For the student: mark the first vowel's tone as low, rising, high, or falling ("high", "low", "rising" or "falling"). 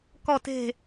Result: falling